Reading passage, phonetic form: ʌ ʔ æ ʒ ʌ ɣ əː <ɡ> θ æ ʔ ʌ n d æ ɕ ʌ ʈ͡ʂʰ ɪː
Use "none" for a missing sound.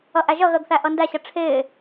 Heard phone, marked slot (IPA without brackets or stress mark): ɡ